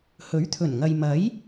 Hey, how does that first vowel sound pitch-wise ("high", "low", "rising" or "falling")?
rising